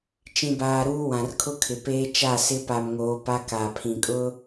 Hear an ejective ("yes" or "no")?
yes